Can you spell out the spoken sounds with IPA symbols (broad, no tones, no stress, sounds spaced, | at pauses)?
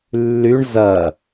lː y ɳ z ɐ